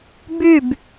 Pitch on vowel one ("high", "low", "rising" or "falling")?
falling